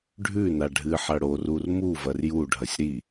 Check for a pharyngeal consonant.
present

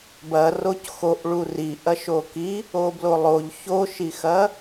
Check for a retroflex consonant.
present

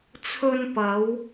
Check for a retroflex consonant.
absent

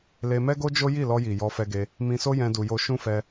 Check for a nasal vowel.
present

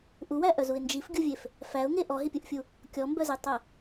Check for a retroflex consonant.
absent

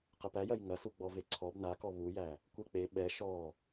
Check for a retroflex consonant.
absent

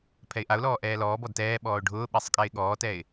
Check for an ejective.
present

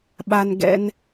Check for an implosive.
present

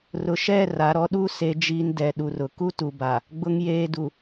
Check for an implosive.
present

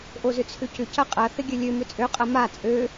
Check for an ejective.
present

